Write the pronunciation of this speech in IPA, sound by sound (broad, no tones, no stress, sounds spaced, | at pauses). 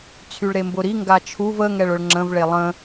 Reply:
t͡sʰ y ɭ ɾ e m b ʊ ɾ i ŋ ɡ a t͡ʃʰ u v ə ŋ ɛ ɭ ʊ ɭ ŋ͡ǁ ə̃ v ɭ e lˠ ə̃